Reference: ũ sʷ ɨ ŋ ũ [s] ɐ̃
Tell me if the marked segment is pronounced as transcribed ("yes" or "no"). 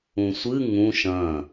no